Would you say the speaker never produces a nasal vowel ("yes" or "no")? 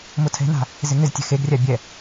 yes